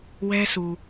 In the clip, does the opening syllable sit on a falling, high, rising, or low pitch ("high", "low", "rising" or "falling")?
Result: high